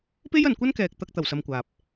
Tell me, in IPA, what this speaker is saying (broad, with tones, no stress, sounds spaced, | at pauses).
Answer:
p e˥ j ɐ˨ n kʷ ɐ˥ n k ɛː˨ k̚ t̪ ɐ˧ k̚ t̪ ɐ˨˩ w s ɐ˧ m kʷ aː˨ p̚